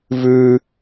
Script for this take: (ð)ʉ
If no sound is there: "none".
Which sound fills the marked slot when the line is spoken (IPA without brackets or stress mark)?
v